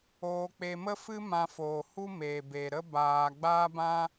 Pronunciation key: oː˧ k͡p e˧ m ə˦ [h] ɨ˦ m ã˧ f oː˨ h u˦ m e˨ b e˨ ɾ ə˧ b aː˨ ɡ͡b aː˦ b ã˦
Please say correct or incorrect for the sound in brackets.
incorrect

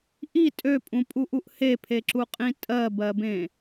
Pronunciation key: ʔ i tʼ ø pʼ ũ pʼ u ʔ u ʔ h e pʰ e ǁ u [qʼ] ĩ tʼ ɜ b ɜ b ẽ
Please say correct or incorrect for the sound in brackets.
correct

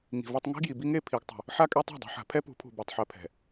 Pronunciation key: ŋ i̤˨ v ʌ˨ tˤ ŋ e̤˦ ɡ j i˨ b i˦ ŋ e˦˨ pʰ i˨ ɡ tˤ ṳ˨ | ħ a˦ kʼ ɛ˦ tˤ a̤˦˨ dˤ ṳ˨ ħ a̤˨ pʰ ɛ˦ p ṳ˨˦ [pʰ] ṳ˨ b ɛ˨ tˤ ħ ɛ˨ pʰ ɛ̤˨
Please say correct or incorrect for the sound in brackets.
correct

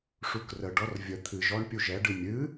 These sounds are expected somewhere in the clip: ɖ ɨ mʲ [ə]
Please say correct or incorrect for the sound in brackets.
incorrect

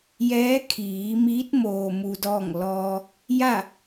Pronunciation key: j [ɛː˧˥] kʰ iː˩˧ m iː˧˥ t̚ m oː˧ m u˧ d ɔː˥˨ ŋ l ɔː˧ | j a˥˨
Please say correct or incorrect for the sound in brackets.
correct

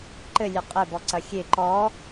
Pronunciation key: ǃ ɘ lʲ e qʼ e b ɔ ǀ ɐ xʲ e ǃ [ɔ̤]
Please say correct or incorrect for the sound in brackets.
incorrect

